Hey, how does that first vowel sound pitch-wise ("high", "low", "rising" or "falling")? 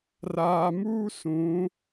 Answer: low